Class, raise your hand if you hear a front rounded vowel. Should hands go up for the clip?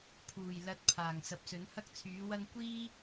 yes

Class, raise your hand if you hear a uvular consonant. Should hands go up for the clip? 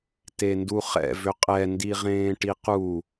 yes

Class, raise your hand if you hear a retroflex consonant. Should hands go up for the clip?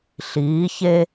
no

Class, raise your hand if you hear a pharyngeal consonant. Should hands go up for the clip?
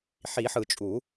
yes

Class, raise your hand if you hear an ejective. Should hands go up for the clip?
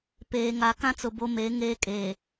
yes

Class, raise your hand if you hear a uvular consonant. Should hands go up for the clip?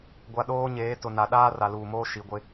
no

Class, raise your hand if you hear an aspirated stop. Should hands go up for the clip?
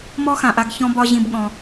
no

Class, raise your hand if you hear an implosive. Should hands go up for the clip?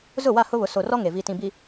no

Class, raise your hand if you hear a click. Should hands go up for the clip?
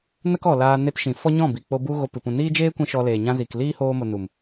no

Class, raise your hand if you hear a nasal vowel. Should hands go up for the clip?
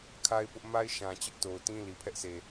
yes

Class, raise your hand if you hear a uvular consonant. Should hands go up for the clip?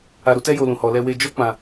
no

